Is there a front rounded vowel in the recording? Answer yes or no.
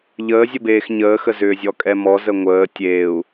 yes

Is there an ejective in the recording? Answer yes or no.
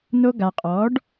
yes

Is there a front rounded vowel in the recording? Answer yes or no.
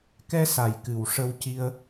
no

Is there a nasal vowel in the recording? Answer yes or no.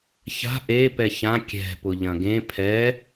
yes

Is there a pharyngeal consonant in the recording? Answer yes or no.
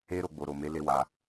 no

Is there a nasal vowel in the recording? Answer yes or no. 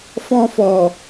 yes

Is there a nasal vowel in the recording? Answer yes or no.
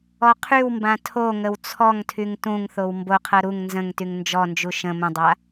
yes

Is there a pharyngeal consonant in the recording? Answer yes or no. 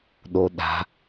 no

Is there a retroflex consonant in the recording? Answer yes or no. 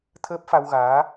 no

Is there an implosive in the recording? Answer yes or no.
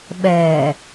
yes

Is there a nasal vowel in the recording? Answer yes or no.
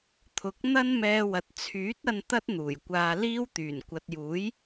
no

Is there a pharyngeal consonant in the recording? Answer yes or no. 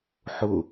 yes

